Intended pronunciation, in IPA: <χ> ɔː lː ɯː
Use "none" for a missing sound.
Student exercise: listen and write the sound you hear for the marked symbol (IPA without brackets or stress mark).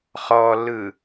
χ